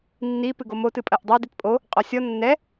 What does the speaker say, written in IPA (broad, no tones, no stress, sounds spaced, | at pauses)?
nː i p ɨ ɡ o m o t ɨ pʼ ɐ ʔ dˤ ɐ d i t pʼ o | qʼ ɔ sʲ ɔ nː ɛ